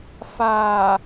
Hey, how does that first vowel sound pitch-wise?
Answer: low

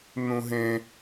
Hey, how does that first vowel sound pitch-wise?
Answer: high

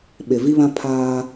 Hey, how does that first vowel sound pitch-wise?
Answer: low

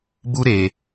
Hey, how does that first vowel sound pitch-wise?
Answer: high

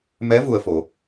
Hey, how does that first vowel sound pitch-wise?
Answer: rising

